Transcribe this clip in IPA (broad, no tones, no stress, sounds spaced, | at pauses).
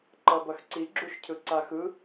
ǃ ʌ b ʌ x ǀ i ɡ͡ǁ u ʃ cʰ ɯ ǀ a x ɯ